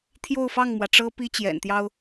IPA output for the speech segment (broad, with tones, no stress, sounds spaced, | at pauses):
t̪ʰ j o˥˧ ʊ̯ f ɑ˥˩ ŋ m w ä˩ ʈ͡ʂ ɤ˥ p i˥ t͡ɕ j ɛ̰˨˩ n t̪ j ɑ˥ ʊ̯